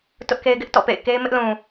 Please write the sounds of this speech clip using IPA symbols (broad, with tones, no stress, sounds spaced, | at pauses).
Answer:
t ʊ˦ ʔ k e˦ ɪ̯ ɡ ɪ˦ ʔ t ɔ̰˦˨ p ḛ˦˨ ɪ̯ k e˦ ɪ̯ m ɪ˦ ʔ l ũ˨